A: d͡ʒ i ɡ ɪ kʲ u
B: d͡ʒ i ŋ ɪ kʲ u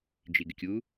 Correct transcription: A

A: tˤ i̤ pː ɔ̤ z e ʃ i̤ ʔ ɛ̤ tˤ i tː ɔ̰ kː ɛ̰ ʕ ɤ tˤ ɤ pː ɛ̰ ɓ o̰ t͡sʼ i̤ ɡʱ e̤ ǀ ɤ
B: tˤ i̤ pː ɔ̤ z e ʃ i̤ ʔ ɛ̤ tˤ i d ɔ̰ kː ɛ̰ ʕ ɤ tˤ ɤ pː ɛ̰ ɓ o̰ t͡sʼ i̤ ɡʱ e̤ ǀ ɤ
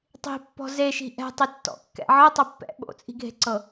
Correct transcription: A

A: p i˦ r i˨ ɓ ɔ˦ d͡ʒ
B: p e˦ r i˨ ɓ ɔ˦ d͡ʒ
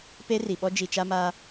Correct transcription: B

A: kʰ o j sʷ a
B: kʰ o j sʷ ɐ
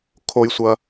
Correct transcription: B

